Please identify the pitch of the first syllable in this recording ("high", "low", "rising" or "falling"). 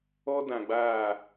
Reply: high